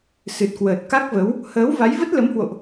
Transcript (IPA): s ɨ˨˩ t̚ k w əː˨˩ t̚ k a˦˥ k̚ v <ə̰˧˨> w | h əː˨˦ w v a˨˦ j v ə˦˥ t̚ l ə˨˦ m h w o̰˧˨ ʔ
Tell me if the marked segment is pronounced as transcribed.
no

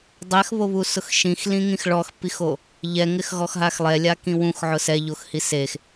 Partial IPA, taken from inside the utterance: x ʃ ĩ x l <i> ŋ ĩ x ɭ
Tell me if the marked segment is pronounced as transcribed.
no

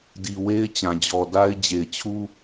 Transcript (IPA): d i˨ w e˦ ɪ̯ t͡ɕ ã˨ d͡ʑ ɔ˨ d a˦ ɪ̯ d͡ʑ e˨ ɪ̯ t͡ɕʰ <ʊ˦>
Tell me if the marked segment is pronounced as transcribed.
no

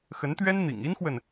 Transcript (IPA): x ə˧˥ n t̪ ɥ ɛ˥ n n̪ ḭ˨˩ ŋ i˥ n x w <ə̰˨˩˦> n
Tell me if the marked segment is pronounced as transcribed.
no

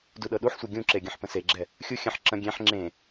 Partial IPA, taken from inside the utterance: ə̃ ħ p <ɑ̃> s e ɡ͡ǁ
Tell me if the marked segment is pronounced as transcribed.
no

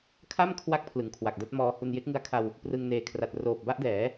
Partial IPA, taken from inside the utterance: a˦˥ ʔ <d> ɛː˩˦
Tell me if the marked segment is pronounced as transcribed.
yes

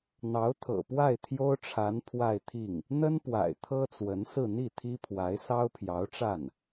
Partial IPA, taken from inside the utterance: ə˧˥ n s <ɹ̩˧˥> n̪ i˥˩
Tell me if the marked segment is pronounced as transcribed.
no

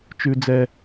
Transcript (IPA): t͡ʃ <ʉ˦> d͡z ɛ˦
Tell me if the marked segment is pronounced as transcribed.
yes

